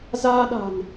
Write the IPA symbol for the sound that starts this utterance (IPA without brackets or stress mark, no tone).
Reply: z